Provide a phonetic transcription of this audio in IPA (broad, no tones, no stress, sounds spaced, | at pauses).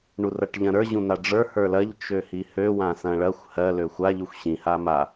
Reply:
ɳ u r ɐ ʈ ʎ ɐ̃ ɾ ə˞ ʑ ũ n̪ a ɖ͡ʐ ə˞ h ə˞ l ɐ ʎ t͡ʃ ø h i h ø w ã s ɐ̃ ɭ ɐ xʷ h ɜ l ø xʷ a ʎ u xʷ ɕ ĩ h a m a